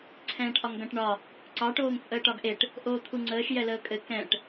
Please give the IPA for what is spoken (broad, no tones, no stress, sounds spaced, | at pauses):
ǀʰ ɛ̃ː ʈ ʔ ɒ ŋ ɡ ɐ̃ ʈ ɳ ɒ | ǀ ɑ ʈ oː ŋ t͡sʼ əː ʈ ɒ ɡ ʔ e ʈ | ʔ oː t̪ʰ u ŋ͡ǀ əː ʃ j ɛ l əː kʼ ɘ k ɛ̃ ʈ